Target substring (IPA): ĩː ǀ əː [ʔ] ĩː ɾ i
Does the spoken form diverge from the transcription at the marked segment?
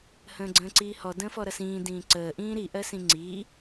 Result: no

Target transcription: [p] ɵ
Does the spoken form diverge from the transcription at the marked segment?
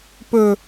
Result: no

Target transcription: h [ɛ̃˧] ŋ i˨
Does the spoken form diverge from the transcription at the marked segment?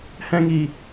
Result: no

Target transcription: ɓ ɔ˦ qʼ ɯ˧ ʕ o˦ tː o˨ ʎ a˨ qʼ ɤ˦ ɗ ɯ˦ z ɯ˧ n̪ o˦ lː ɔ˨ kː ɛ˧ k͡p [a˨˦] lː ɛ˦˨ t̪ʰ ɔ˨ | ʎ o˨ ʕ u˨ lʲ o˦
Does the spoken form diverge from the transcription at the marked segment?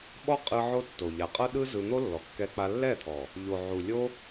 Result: yes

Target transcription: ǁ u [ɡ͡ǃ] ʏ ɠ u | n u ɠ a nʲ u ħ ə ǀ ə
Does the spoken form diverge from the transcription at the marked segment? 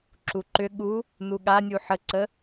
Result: yes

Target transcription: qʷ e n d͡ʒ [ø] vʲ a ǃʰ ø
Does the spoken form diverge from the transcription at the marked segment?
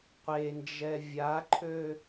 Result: yes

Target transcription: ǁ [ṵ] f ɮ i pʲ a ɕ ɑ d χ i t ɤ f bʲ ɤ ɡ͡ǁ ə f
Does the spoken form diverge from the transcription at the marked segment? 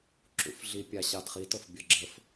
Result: no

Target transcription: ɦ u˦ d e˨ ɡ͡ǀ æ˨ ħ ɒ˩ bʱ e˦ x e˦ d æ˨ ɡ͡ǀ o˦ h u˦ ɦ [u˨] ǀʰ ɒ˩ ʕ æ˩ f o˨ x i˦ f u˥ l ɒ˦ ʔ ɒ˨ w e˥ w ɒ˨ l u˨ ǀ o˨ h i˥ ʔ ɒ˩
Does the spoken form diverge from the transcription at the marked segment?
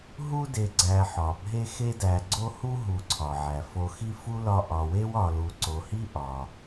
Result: no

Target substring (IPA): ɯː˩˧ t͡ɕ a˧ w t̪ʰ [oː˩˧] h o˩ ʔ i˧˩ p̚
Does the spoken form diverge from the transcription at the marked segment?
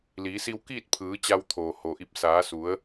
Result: yes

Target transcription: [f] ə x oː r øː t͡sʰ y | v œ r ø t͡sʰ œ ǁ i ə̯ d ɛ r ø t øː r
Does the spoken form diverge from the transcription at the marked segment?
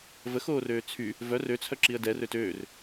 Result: yes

